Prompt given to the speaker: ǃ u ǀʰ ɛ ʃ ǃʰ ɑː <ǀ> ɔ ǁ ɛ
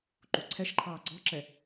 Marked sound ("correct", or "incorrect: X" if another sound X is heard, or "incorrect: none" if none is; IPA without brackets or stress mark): incorrect: ɡ͡ǀ